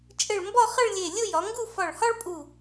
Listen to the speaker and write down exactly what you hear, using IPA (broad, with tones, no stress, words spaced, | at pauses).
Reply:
t͡ʃʼɘ˧˩ɭmbɒ˥˧χə˥˧ɭlʲe˧˩ lʲʊ˥˧jɒ˩˧ŋɡu˥˧ fɒ˧˩ɭhɒ˥ɭpʼu˧˩